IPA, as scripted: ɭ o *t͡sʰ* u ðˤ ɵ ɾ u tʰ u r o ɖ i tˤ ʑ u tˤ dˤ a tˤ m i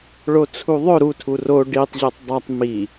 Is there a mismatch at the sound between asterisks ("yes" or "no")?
no